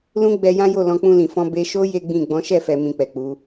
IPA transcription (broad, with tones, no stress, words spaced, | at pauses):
lũ˦ɡ͡bɛ˧jã˦jo˦˨ lɔ̃˧k͡pũ˧lĩ˨fɔ̃˧ be˧ʃo˦ je˦ɡ͡bĩ˦˨ ɡ͡bɔ̃˨˦ʃɛ˦˨fɛ˨ mĩ˧k͡pɛ˨k͡pu˨˦